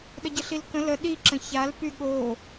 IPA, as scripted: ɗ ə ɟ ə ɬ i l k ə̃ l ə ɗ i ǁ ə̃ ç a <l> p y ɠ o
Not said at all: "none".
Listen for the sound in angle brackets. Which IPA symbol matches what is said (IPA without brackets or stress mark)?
l